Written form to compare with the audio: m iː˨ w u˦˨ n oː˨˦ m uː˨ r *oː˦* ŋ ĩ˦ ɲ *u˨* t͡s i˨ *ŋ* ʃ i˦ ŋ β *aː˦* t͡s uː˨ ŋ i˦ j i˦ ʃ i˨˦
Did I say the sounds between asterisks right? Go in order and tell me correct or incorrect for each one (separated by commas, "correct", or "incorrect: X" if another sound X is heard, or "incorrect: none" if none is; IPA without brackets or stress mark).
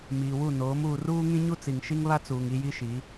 incorrect: uː˦, incorrect: u˦, correct, incorrect: a˦